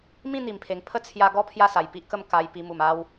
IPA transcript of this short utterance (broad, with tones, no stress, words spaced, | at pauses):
mĩ˥˧ n̪i˨˩mpʰe˨˩ŋ pʰə˥˧t͡sʰja˧ɡɔ˥˧ pʰja˥˧sa˨˩jpi˦ʔkə˥˧m ka˧j pi˧ mu˨˩ma˦w